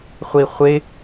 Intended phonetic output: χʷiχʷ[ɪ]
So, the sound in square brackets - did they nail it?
yes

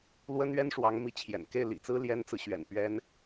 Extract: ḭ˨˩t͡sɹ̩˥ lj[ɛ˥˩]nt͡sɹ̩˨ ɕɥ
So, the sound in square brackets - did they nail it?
no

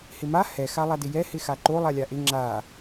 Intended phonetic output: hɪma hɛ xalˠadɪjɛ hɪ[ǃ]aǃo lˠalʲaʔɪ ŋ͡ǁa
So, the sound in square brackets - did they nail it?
no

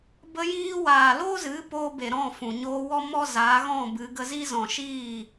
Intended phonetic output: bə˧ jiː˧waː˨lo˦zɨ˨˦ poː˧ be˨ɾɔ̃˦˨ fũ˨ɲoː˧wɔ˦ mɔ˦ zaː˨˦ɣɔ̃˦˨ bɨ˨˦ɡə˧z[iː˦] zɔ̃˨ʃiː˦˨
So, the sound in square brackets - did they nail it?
no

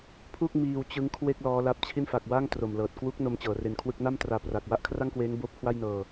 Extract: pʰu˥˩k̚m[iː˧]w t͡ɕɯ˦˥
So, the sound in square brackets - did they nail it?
yes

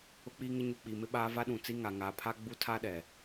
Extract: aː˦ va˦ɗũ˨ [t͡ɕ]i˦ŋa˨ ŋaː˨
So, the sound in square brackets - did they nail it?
no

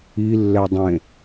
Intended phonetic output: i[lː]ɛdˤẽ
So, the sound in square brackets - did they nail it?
yes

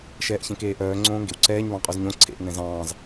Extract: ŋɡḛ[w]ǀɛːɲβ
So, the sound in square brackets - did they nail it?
yes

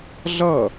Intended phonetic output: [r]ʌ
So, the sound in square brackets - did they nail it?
no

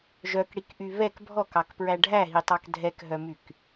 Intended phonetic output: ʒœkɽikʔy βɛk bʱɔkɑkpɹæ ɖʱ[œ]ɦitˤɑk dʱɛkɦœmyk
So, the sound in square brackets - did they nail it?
no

